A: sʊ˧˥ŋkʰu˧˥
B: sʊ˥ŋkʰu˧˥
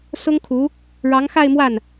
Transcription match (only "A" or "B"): B